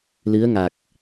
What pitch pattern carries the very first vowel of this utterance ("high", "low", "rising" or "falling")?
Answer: rising